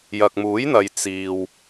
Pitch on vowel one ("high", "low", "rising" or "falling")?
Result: low